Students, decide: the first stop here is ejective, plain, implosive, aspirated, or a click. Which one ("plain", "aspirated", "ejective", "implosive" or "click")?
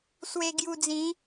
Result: plain